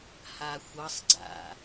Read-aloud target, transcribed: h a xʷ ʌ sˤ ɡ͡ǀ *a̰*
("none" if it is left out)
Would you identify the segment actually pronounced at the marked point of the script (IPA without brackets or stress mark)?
a̰